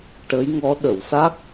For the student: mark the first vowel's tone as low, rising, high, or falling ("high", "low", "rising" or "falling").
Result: rising